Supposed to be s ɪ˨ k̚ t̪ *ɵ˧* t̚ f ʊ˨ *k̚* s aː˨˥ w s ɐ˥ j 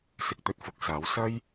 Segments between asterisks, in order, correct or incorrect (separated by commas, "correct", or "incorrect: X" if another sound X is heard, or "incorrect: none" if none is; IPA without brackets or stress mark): correct, correct